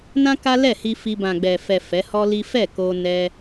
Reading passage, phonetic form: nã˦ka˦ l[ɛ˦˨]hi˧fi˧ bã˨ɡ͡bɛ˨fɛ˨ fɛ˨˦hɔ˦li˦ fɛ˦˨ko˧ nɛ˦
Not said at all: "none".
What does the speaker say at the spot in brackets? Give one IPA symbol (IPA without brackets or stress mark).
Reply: ɛ˦˨